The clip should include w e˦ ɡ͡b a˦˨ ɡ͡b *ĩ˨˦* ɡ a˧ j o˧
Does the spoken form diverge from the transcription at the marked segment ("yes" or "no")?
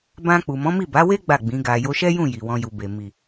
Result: no